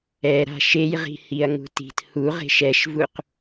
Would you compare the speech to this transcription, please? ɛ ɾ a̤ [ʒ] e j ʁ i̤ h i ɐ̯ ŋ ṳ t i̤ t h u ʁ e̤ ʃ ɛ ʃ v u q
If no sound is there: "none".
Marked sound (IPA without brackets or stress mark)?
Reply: ʃ